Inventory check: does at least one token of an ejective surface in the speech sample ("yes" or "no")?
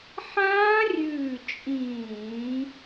yes